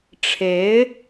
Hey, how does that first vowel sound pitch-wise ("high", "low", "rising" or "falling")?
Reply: rising